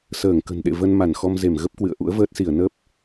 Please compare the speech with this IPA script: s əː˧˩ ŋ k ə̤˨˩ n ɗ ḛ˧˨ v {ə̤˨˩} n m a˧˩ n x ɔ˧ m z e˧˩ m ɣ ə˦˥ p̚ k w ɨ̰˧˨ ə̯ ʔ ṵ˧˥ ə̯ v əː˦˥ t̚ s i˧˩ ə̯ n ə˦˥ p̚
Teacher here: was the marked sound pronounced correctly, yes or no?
no